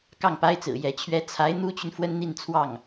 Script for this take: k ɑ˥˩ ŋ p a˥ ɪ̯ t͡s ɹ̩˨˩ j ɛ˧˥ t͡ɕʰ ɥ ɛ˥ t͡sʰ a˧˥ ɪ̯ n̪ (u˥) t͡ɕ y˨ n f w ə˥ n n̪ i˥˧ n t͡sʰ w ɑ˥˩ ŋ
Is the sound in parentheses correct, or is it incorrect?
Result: correct